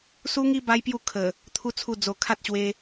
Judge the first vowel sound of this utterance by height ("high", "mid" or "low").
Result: high